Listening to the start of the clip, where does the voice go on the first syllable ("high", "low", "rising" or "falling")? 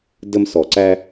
high